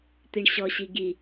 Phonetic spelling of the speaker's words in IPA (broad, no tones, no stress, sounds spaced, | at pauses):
t̪ i ɳ ɕ ɔ ɕ i ɡ i